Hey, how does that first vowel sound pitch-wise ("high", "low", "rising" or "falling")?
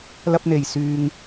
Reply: high